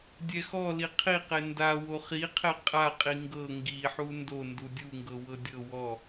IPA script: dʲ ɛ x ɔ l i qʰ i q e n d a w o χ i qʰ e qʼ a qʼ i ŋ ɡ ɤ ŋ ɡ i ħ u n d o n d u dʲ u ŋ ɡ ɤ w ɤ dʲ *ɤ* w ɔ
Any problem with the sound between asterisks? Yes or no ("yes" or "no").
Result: no